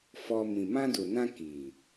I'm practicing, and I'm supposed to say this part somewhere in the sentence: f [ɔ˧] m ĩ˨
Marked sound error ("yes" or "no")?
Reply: no